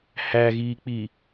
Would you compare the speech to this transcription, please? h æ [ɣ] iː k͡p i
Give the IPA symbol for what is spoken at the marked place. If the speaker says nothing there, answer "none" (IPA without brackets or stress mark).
ɣ